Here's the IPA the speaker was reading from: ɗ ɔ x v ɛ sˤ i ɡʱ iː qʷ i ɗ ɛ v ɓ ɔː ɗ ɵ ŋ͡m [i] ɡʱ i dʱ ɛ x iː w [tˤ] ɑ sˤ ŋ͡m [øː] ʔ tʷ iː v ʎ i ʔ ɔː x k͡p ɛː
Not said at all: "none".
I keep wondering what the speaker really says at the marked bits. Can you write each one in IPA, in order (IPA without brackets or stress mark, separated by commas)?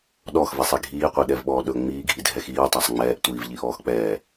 iː, tˤ, ɛː